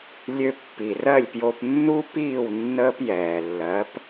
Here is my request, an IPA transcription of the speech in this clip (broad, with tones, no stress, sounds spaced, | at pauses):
lʲ ø˧ pː i˩ r ɜ˥˩ lʲ p j o˧ p nː u˥ p iː˥˩ w nː əː˥ p j ɛː˩ lː ɜ˩˥ p